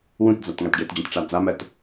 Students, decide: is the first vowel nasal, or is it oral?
nasal